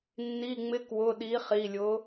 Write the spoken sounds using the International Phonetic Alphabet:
nː i˩˧˩ ŋ͡m ɪ˨˥ k w ʊ˩˧˩ ɗ i˨˥ χ i˩˧˩ lʲ ʊ˨˥

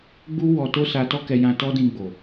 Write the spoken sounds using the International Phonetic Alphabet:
ɡ͡b u˦ w ɔ˧ t o˦ s a˧ t ɔ˦ k ɛ˧ j ã˧ t ɔ˦ d ĩ˧ ɡ͡b o˨

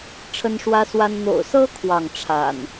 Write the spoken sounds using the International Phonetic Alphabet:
ʈ͡ʂʰ ə˦ n ʂ w ä˦ s w a˦ n n̪ o̰˨˩ ʊ̯ s ɤ˦ kʰ w ɑ˥˨ ŋ ʈ͡ʂʰ a̰˨˩ n

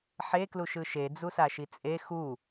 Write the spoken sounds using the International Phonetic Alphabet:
ħ e k l u ʃ ɯ ʃ e d͡z u s a ʃ i t͡sʼ e x u

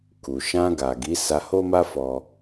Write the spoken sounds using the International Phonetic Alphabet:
k u˨ ʃ ã˧ ɡ a˨ ɡ i˨˦ s a˧ h o˦ m a˦ f ɔ˦

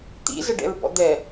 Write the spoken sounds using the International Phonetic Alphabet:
t̪ ḭ z ə ɖ ɛ̰ ɹ b ɔ̰ d̪ ɛ

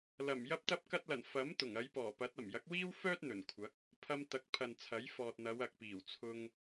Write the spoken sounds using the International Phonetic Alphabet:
l ɐ˨˩ m j ɐ˧ p̚ t̪ ɐ˧ p̚ k ɐ˧ t̚ l ɐ˨˩ n f ɐ˨˥ m t̪ ʊ˨˩ ŋ ɐ˨˧ j p ɔː˨˩ p ɐ˨˥ t̚ ɐ˨˩ m j ɐ˨˥ k̚ w iː˥ w f œː˥ t̚ n̪ ɵ˨˩ n kʷʰ ɐ˨˥ k̚ | pʰ ɐ˧ m t̪ ɐ˨˥ k̚ pʰ ɐ˨ n t͡sʰ ɐ˨˥ j f ɔː˨ t̚ n̪ ɐ˨˧ w ɐ˨ k̚ p iː˨˩ w t͡sʰ ʊ˧ ŋ

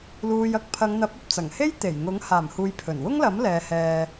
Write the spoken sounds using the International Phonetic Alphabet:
l uː˨ j ɐ˨ k̚ pʰ ɐ˨˧ ŋ n̪ ɐ˨˥ p̚ ɐ˨ p̚ t͡s ɐ˨˩ ŋ h e˥ j t̪ e˨˩ j ŋ ʊ˨˥ ŋ h aː˨˩ m h uː˨ j pʰ ɵ˨˩ n w ʊ˥ ŋ l ɐ˨˥ m l ɛː˨˧ h ɛː˧

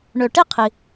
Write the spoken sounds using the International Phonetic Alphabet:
ɳ ø˨ ʈ i˥ qʰ i˨

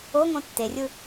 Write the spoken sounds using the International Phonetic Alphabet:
o ŋ õ tː e rʲ ɯ

